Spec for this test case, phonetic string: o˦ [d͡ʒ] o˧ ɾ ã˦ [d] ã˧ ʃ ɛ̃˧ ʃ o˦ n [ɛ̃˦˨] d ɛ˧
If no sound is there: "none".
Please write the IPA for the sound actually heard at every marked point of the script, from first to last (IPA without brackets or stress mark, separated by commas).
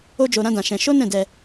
d͡ʒ, d, ɛ̃˦˨